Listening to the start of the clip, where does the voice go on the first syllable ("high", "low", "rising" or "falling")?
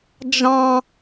high